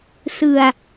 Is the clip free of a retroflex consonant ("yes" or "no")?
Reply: yes